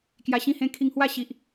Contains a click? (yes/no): no